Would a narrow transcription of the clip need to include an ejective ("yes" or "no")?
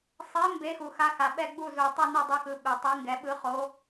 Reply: no